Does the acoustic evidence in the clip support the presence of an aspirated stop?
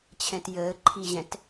yes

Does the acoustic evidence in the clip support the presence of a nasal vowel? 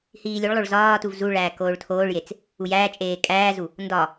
no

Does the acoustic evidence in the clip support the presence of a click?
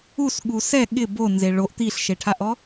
no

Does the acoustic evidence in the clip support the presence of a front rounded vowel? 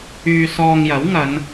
yes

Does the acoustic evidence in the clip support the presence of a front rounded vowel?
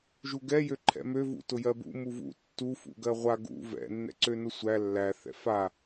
yes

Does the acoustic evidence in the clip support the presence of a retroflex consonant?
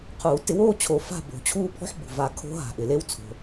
no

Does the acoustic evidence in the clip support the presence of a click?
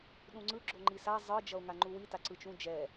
yes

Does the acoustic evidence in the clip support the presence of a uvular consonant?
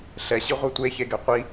yes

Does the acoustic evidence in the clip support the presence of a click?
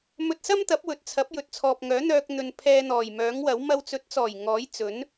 no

